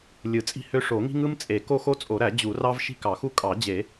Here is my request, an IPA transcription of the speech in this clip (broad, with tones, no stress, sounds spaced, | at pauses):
lʲ ɯ˨˩˦ t͡sʼ i̤˥ h ø˥ ʂ o˨˩˦ ŋ i̤˥ ŋ ɯ˥ m t͡sʼ e˨˩˦ k o˥ x o˥ t͡sʼ o˨˩˦ ɾ æ˨˩˦ d͡ʑ u˨˩˦ r ɑ˥ v ʃ i̤˥ k ɑ˨˩˦ x u˥ kʼ ɑ˨˩˦ d͡ʑ e˨˩˦